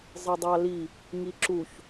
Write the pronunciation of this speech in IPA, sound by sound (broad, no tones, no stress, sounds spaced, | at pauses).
zˤ ɯ dˤ ɑ l i | ŋ i ǁ u ç